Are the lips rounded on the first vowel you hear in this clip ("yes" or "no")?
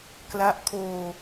no